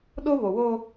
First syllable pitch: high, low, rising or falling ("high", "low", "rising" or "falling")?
high